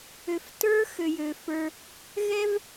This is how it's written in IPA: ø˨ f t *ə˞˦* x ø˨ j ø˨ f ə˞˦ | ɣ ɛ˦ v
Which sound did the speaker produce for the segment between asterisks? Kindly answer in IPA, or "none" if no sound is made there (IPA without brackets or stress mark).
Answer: ə˞˦